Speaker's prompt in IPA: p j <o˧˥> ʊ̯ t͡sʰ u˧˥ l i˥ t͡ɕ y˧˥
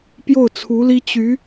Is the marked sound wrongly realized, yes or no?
yes